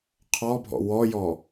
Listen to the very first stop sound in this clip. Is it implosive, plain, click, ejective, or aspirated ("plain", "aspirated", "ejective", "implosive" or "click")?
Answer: aspirated